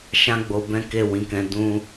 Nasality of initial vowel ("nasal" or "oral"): nasal